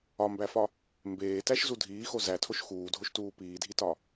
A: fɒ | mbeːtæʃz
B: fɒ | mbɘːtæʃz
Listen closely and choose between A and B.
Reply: A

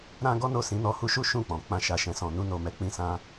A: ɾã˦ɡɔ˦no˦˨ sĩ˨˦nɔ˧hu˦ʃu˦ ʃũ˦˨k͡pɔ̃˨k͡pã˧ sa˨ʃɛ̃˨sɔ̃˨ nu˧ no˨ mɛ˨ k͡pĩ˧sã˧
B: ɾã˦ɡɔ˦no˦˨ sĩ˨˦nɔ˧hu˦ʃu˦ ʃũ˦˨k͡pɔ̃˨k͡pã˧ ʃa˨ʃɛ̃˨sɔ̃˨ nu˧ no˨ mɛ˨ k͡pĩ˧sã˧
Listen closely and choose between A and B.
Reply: B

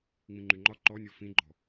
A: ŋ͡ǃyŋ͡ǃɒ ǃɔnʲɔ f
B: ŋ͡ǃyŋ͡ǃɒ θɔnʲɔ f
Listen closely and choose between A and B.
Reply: A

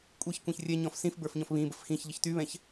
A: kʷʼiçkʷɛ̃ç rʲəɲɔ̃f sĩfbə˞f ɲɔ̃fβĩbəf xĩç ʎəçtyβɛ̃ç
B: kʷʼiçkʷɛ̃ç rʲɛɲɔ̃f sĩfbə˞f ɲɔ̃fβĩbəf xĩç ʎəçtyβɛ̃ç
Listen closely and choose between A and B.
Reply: B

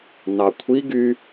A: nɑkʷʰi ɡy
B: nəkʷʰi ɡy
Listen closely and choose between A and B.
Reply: A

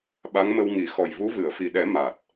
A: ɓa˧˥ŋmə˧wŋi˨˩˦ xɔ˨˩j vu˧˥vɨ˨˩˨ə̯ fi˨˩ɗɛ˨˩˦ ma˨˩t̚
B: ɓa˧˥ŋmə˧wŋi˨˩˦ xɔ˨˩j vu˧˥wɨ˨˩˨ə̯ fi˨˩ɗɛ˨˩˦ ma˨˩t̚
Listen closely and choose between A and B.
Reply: A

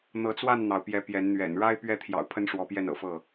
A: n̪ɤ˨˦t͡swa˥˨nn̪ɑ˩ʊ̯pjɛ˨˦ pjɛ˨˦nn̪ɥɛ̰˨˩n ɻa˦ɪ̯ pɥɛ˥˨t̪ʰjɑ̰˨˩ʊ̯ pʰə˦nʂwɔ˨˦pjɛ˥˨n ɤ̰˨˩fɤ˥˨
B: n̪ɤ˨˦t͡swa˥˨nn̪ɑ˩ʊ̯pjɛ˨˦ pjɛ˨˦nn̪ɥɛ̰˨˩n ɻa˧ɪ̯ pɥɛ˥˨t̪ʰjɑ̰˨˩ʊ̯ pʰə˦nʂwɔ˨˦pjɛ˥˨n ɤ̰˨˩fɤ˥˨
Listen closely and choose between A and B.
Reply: A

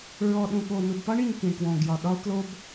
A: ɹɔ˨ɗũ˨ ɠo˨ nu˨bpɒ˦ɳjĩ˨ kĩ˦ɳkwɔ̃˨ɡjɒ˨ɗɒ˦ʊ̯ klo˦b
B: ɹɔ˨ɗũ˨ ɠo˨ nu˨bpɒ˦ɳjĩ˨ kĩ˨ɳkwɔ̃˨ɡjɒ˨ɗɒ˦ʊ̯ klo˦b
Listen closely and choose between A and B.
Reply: B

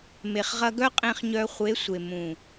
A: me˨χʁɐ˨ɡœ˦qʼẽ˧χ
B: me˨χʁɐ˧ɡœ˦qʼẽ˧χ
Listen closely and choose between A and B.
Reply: B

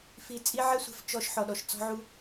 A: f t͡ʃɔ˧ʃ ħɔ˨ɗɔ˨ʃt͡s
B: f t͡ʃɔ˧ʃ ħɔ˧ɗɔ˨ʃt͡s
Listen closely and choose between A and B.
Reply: A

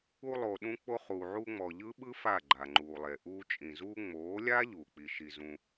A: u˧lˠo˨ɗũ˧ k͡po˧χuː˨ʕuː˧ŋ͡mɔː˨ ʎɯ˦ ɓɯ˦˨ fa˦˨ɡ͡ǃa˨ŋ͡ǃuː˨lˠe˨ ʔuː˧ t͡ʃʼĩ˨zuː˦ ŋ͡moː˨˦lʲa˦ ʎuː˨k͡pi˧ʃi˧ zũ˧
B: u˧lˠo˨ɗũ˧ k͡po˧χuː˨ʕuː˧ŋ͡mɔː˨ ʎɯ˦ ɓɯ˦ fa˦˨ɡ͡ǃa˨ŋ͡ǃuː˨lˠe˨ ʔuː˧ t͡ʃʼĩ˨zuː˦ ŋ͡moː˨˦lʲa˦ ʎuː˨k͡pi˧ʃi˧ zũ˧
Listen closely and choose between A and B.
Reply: B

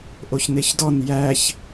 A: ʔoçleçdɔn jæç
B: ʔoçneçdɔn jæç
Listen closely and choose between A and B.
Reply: B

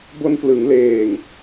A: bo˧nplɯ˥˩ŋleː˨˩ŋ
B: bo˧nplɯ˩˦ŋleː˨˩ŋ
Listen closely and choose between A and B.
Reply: B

